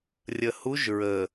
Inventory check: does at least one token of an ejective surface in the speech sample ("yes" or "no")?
no